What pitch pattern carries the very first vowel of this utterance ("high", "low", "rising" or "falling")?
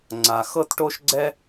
low